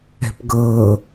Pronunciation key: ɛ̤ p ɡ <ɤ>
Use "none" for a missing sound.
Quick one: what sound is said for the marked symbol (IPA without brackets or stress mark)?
ɤ